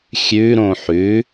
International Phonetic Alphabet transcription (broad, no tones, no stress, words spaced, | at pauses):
xʲʉɾõ ħʉ